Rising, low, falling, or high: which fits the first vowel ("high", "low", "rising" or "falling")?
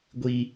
high